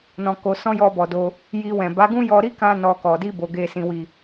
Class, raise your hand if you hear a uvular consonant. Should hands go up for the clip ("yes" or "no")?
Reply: no